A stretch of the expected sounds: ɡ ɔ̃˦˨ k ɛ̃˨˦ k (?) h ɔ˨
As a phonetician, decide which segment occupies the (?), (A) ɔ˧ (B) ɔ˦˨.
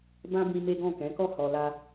B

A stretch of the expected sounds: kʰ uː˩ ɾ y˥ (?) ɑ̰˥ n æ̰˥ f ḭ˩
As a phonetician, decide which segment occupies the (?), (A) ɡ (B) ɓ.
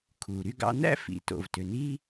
A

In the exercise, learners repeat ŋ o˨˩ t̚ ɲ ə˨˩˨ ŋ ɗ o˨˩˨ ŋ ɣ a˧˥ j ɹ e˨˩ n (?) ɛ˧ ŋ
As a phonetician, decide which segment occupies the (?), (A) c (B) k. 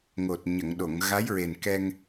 B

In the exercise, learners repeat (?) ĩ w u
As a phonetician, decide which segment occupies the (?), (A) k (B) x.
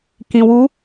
A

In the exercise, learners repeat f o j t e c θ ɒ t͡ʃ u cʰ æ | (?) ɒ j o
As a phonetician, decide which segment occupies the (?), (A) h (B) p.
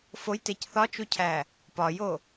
B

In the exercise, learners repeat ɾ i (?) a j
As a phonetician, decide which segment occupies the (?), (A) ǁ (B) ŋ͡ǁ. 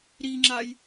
B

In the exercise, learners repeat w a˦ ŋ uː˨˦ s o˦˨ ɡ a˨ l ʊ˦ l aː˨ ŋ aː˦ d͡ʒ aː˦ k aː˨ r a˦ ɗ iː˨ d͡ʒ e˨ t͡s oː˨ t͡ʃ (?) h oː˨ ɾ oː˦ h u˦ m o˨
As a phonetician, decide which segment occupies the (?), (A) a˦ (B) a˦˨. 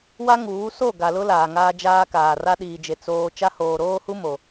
A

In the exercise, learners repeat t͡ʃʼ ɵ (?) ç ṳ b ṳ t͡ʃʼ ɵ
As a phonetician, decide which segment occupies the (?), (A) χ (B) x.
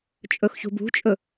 B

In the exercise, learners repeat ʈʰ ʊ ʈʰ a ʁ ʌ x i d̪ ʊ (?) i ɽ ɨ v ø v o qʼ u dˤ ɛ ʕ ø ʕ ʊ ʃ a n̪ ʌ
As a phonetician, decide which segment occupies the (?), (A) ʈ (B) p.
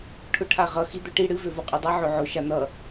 A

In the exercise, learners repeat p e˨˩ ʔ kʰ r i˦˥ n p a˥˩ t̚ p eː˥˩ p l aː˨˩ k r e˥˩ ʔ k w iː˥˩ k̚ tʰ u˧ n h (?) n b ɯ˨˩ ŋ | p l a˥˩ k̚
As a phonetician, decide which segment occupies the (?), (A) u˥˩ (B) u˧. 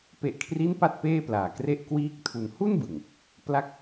A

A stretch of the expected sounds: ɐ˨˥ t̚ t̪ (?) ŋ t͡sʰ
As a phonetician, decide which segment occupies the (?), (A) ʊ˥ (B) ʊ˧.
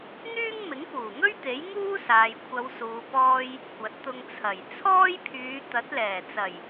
B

